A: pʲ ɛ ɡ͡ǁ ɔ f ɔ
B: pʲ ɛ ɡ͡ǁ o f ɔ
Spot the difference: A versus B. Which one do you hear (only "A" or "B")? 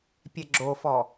B